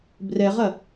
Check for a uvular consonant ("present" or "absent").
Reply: present